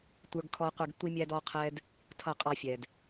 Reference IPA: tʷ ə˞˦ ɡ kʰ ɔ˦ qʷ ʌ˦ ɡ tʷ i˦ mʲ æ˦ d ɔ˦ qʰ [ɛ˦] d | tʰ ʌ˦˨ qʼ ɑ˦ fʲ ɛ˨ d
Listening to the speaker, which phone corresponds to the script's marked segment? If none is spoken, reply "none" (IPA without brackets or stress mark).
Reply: ɛ˦